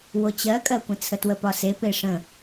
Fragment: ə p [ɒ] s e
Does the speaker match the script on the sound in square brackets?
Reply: yes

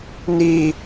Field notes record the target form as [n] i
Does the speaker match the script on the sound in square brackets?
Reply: yes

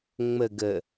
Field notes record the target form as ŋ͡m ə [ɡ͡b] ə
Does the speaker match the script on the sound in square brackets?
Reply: no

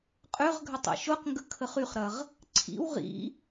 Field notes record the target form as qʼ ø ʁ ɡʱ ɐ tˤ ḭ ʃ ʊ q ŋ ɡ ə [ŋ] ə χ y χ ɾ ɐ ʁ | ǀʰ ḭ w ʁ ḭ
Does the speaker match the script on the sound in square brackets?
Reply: no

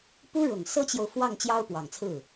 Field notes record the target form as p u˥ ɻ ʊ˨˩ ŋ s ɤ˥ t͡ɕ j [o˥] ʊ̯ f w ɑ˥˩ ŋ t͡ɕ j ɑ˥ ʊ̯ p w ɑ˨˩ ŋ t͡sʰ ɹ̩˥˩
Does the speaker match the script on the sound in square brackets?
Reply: no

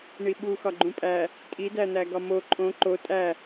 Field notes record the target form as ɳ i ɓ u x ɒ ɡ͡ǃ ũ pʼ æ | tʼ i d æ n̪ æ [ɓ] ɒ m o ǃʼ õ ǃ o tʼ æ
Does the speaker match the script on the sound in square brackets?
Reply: no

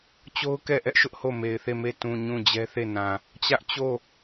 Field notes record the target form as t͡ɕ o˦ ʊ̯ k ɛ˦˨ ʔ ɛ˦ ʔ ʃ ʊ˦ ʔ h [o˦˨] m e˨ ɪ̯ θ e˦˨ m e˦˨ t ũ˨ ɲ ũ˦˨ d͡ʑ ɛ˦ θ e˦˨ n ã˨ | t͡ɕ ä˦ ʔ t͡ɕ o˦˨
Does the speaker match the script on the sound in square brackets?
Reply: yes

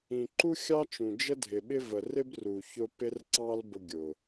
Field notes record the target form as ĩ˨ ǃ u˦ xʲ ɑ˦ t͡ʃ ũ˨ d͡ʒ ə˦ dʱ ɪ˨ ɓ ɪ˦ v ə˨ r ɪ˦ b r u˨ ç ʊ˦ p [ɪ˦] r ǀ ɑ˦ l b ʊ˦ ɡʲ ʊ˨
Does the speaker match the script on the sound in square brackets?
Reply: yes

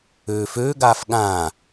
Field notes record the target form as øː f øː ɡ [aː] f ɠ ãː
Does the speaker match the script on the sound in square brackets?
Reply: yes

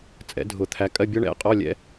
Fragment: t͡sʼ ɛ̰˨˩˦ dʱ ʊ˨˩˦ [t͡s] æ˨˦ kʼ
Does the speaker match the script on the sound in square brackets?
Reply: no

